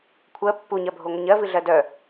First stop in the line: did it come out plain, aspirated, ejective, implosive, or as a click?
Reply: aspirated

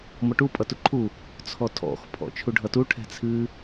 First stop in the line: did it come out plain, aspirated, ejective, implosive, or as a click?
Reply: plain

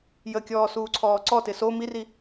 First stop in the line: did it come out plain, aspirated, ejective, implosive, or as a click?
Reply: plain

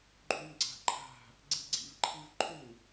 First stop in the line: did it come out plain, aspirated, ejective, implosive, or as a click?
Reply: click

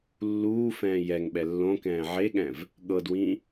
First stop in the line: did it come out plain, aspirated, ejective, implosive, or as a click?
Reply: implosive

